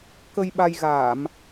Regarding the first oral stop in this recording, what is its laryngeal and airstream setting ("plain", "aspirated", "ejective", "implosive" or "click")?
plain